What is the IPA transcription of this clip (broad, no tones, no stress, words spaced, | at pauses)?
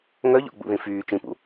ŋœʎɔ̰ɡ͡bṵðĩ fyː t͡ʃĩpṵ